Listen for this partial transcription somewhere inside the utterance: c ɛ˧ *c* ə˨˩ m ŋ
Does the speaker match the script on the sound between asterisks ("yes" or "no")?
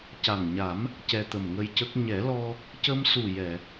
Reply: no